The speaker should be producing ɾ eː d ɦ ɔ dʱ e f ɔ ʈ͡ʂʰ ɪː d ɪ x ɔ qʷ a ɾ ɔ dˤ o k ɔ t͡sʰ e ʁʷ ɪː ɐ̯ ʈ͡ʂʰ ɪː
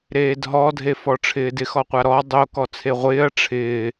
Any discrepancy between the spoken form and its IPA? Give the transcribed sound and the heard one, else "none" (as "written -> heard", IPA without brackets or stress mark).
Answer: none